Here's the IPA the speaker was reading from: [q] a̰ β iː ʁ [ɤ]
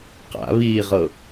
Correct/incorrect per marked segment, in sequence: correct, correct

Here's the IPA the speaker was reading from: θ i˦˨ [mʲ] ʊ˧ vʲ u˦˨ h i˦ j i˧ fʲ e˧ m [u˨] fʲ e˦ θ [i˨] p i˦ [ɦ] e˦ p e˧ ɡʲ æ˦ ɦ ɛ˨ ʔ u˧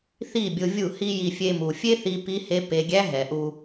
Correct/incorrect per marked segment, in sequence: incorrect, correct, incorrect, incorrect

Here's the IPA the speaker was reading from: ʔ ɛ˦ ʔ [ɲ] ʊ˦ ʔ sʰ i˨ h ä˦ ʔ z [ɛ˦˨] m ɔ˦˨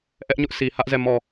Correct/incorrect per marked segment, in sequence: correct, correct

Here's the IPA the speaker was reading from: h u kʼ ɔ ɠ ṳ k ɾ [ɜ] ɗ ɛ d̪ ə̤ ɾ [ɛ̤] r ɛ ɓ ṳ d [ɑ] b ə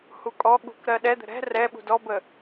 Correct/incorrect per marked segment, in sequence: correct, correct, incorrect

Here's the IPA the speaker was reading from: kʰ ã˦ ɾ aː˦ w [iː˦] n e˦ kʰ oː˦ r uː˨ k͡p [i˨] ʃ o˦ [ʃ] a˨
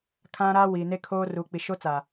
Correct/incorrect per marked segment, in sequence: incorrect, correct, incorrect

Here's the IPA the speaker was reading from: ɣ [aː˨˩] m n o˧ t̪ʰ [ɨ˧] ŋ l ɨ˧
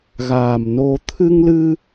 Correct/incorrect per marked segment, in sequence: correct, correct

